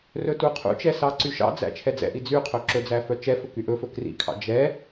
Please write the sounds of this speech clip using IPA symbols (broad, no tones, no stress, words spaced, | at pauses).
rɵtuqʰṵt͡ʃɛ sɑǀyʃɑ̰d͡zæ̰ t͡ʃʰɛd͡zɛ̰ʔi d͡zy qʰɵǁɵd͡zæ fœt͡ʃɛfɵ kyʔɵfɵ krḭkʰɑ̰ d͡ʒɛ